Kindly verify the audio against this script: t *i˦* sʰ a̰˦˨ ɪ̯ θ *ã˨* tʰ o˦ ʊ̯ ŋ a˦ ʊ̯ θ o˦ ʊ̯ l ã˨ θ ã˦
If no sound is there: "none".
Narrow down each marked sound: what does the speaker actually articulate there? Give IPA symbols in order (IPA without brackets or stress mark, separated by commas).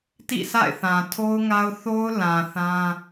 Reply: ḭ˦˨, ã˨